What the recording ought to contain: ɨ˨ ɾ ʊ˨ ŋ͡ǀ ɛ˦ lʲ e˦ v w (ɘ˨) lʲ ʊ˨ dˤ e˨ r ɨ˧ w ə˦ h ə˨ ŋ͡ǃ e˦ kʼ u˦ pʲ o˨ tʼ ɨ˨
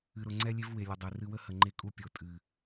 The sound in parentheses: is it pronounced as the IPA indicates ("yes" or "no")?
no